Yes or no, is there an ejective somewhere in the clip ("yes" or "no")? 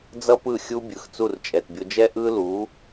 yes